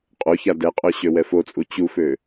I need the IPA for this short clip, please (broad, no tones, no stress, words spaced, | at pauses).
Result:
qʼoça dɛqʼø ɕøwɛfot͡sʼu t͡ɕufø